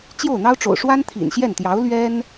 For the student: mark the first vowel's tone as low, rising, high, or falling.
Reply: falling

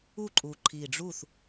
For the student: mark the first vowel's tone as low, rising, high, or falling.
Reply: falling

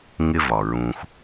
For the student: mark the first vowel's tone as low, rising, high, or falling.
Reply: high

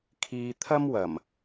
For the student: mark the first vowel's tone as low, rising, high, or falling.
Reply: low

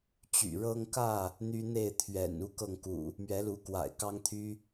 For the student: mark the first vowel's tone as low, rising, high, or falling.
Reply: low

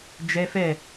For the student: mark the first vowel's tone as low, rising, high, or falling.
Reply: high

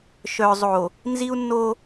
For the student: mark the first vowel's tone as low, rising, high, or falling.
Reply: low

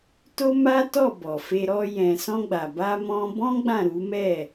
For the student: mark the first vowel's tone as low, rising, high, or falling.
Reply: high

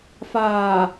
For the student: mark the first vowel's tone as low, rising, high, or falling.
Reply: low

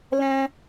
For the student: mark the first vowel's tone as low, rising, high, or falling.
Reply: high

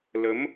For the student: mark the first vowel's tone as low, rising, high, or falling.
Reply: rising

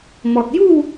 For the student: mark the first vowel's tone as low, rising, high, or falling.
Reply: low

